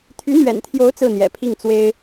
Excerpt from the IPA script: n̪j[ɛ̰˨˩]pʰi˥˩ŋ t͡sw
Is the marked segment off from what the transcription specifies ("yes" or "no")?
no